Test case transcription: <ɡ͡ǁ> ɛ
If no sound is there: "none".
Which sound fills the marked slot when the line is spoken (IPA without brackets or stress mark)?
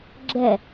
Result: ɡ͡ǁ